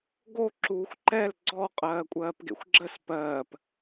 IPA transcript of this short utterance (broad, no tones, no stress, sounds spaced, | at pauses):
ɡ o ǁ uː xʷ ǃ ɛ l ɡ͡ǀ ɔ qʼ ɜː kʷʼ ɜː p ɡ ḛ xʷ ɡ͡ǁ ə s p ɜː p